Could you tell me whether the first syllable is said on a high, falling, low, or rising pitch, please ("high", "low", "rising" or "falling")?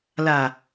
low